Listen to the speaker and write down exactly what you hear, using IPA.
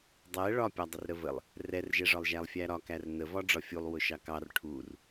dˤ ɛ ɭ ɒ pʲ ɒ dˤ ə r ɾ ə v ə lˠ | r ɛ r ʒ ɛ ʐ ɒ lˠ ʒ æ lˠ fʲ æ ɾ ɒ k æ r n ə v ɒ ɖ͡ʐ ɒ fʲ u lˠ w ʊ ʃ ɑ k ɑ r ʈʰ u r

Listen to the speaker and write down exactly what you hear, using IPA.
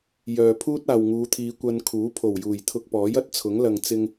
j œː˨ pʰ uː˥ t̚ aː˨ w ŋ uː˨˧ t̪ʰ iː˨˧ kʷ ɐ˧ n kʰ uː˨˥ pʰ o˨˩ w j uː˨˩ j t̪ʰ ʊ˧ k̚ p ɔː˨˥ j ɐ˥ t̚ t͡sʰ ʊ˨˥ ŋ l ɐ˨ ŋ t͡s ɪ˧ ŋ

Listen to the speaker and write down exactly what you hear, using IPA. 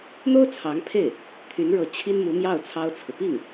n̪ o˥ ʊ̯ t͡sʰ ɑ˧˥ ŋ pʰ e˥˩ ɪ̯ | t̪ʰ y˧˥ n ɻ ɤ˧˥ t͡ɕʰ i˥ n m u˧˥ m j ɑ˥˩ ʊ̯ t͡sʰ ɑ˥ ʊ̯ t͡sʰ ɹ̩˨ p i˥˩ ŋ

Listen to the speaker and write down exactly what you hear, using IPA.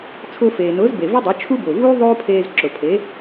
t͡sʰ ʊː˧ f eː˩ n ʊː˩˥ z b e˩ v ɨ˥ dˤ ʊ˩˥ t͡ʃʰ u˥ b ʊː˩ v uː˥ ðˤ oː˥ pʰ eː˧ z ǁ ʊ˩ pʰ e˩˥

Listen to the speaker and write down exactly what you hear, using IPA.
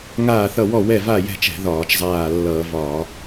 ŋ aː˦˨ θ ʌ˦˨ w ɔ˦˨ w ɛ˦˨ v a˦˨ j ɛ̤˦˨ t͡ʃ ɛ̤˧˩˧ ð ɒː˧˩˧ t͡ʃ zˤ aː˦˨ lː ʌː˧˩˧ v ɒː˧˩˧

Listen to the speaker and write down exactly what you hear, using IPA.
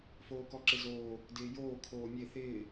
f oː k ɔ ǁ ɪ z oː | d ɪː j oː kʰ oː mʲ e θ ɪː

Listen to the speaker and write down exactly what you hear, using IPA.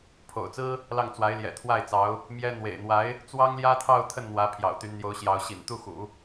pʰ o̰˨˩ ʊ̯ t͡s ɹ̩˥ | l ɑ˥˩ ŋ t͡s w a˧˥ ɪ̯ l j ɛ̰˨˩ t̪ʰ w a˥˩ ɪ̯ t͡s ɑ˧˥ ʊ̯ | m j ɛ˥ n̪ w ḛ˨˩ ɪ̯ n̪ w a˧˥ ɪ̯ | t͡s w ɑ˥ ŋ l j ä˥ t̪ʰ ɑ˥˧ ʊ̯ t̪ʰ ə˥˩ n n̪ w ä˧˥ pʰ j ɑ̰˨˩ ʊ̯ t̪ y˧˥ n n̪ j o˧˥ ʊ̯ ɕ j ɑ˧˥ ʊ̯ ɕ ḭ˨˩ n t̪ u˥˩ x ṵ˨˩˦

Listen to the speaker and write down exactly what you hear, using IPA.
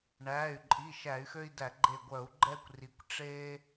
ɳ æ˩˧˩ y̯ ǃʼ i˩˧˩ ʃ æ˧˩˧ y̯ x ø˦ i̯ d æ˧˩˧ ɡ͡ǃ e˧˩ ɡʷ œ˧˩˧ u̯ ɡ͡ǃ ɛ˦ kʷ r i˩˥ kʷ ʈ͡ʂ e˦

